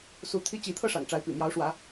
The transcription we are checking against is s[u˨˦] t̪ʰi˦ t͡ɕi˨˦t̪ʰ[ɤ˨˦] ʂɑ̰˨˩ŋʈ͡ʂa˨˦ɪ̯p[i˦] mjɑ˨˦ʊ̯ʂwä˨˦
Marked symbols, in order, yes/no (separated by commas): yes, no, no